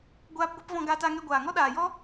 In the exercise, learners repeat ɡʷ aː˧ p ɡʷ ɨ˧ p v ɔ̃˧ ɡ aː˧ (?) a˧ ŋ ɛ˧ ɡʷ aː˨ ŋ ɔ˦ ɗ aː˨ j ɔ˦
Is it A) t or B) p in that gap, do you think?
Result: A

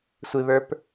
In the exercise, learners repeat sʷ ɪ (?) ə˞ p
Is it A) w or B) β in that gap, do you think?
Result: B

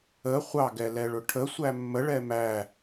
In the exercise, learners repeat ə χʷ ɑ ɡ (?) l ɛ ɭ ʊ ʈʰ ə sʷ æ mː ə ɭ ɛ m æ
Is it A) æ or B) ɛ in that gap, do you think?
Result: B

